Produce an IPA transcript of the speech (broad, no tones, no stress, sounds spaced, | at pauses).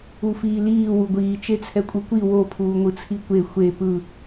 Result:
u f iː l iː w u ɡʷ iː t͡ʃ e t͡sʰ ɛ kʷʼ ɯ kʷ i w o pʰ uː ŋʷ ɯ t͡sʰ i kʷ e xʷ e p ɯ